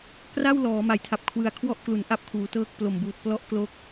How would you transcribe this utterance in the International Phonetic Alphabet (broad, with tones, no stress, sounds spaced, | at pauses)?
k r a˥˩ w l ɔː˩˦ m a˨˩ j tʰ a˨˩ p̚ kʰ w ɯ˩˦ a̯ kʰ w ɔ˥˩ ʔ k l u˩˦ n ʔ a˦˥ p̚ kʰ uː˩˦ t ɤː˦˥ k̚ p l o˨˩ m b uː˨˩ t̚ p l ɔ˦˥ ʔ k l o˦˥ k̚